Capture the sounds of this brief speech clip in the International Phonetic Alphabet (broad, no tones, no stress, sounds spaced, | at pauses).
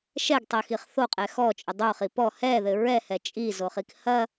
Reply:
ʃ ɛ ɡ tˤ ɛ x i χ θ o qʼ ɛ x ɔ t͡ʃʼ ɘ dˤ o χ i p ɔ h ɛ ð ɘ ɹ ɛ h ɛ t͡ʃʼ i z o χ i k h ɐ